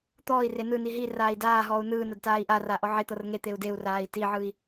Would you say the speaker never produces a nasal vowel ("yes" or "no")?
yes